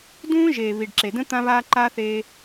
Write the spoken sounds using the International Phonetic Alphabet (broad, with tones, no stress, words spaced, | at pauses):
dũː˦ʒeː˨ βi˨ɖǁe˨də̃˦ t̪ã˧βa˧ ǃa˦θe˧